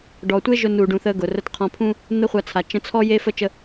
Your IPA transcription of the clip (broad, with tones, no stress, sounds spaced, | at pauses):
ɖ ɔ˨ tʷ e˦ ʒ ʊ˧ n u˨ ɖ ũ˨ θ ə˧ ɡ ʊ˨ r ə˦ t qʰ ɔ̃˧ pʰ ũ˦ | n̪ ə˦ χʷ a˧ t͡sʰ a˨ t͡ʃ ə̃˧ t͡sʰ ɔ˦ j e˦ f ə˦ t͡ʃ ə˦